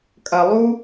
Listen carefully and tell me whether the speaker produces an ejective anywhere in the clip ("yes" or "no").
yes